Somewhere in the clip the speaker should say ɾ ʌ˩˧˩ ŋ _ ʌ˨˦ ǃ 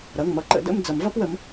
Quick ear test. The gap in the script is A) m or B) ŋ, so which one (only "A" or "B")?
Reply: A